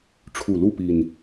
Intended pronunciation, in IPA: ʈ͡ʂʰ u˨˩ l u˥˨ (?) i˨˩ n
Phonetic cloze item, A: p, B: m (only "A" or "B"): A